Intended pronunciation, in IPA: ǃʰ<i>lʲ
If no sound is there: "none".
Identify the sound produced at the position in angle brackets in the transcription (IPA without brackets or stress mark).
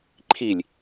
i